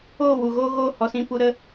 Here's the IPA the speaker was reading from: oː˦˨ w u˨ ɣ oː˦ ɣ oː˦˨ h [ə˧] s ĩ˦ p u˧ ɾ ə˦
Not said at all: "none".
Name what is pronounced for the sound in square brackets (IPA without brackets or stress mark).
ɔ˧